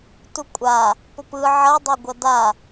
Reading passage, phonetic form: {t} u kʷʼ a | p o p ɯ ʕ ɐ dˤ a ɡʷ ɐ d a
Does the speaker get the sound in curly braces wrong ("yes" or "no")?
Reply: no